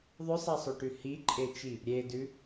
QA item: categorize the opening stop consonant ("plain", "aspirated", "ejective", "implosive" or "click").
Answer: plain